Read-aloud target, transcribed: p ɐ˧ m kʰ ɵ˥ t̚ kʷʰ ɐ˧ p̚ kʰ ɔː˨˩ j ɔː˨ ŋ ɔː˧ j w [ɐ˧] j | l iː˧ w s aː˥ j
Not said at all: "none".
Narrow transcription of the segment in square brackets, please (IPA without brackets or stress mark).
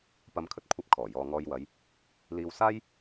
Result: ɐ˨˧